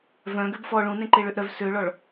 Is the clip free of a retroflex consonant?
no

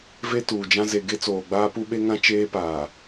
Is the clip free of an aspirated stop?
yes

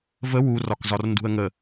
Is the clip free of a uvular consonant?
yes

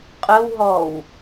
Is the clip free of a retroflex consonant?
yes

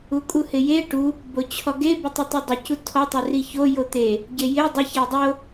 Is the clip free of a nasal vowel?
yes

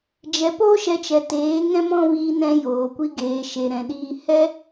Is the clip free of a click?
yes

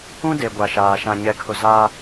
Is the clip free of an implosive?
yes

